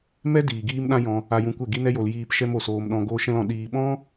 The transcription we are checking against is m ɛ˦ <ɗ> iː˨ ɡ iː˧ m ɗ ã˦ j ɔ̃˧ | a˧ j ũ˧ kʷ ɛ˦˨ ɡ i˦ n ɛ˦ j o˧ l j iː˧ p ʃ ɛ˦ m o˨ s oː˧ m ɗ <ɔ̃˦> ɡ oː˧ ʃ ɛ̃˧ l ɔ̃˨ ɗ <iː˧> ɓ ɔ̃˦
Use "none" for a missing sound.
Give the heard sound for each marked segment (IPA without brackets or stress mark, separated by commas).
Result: d, ɔ̃˧, iː˧